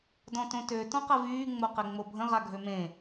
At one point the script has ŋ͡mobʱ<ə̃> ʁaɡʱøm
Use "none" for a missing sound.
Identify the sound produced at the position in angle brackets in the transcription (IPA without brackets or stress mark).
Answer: ə̃